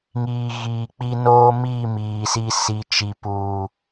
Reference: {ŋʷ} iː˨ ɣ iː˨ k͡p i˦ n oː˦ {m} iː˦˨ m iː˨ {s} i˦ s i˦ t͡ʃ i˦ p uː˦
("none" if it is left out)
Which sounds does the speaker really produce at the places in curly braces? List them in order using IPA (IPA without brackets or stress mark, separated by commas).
ŋ, m, s